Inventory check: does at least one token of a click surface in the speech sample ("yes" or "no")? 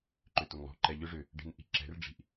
yes